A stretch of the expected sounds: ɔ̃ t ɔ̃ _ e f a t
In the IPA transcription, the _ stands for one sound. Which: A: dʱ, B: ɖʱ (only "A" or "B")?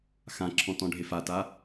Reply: B